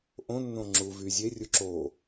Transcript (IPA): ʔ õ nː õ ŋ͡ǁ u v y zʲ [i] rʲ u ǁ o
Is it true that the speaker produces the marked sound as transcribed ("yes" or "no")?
no